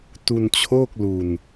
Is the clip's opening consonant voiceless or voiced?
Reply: voiceless